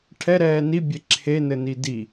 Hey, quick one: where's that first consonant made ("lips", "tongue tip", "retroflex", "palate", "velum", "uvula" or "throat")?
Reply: retroflex